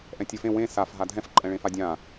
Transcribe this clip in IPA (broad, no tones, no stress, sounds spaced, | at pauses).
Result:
ʔ ɛ̃ tʲ ə˞ f ẽ w ẽ s a f ɦ a dʱ ɛ̃ f ǃʼ ɛ̃ ɭ ẽ f a dʲ ã